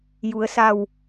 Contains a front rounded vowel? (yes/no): no